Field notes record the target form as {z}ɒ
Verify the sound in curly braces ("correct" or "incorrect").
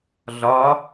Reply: incorrect